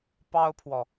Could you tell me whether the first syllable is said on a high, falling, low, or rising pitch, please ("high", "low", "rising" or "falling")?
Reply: high